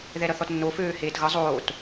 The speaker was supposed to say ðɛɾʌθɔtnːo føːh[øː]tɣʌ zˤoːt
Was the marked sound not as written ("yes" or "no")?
yes